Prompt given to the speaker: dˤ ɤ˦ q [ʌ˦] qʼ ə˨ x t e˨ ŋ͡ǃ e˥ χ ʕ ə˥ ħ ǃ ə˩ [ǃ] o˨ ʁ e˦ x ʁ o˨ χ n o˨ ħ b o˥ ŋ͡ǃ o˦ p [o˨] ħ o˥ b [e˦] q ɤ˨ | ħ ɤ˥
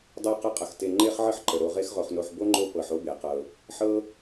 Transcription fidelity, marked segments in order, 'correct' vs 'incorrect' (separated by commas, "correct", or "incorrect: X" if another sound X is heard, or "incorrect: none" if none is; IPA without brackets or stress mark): incorrect: ə˦, incorrect: ɾ, incorrect: ɤ˨, incorrect: e˩